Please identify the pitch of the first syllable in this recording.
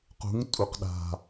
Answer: rising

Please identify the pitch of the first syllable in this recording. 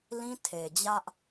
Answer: high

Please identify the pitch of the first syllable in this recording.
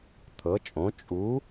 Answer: rising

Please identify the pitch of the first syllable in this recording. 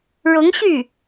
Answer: rising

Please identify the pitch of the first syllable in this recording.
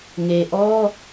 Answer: low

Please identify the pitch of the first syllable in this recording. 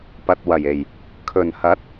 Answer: low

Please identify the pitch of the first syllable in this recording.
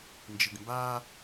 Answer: low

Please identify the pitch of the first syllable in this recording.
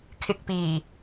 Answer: low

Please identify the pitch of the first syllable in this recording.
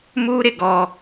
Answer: high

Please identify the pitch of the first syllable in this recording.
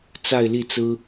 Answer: falling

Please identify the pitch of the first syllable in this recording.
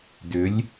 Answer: rising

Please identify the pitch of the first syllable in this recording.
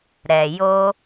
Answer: low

